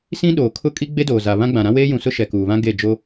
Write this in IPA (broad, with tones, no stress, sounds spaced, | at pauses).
s ĩ˦ ɗ oː˨ kʰ ʊ˦ kʼ i˦ ɡ͡b e˦ d oː˨ z a˨ β ã˦ ɡ͡b ã˨ ɾ ã˦ w eː˦ j ũ˨ s ʊ˦ ʃ ɛ˨ k uː˨ β ã˦ ɡ e˦˨ d͡ʒ o˦